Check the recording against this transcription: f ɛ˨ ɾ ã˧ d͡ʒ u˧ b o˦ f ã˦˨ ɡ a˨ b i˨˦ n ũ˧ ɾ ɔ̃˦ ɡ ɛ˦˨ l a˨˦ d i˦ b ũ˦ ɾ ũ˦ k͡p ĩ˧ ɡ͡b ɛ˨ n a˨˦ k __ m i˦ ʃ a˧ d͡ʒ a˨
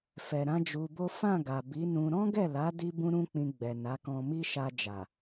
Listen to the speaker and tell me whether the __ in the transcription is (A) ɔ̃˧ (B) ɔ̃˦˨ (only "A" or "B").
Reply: A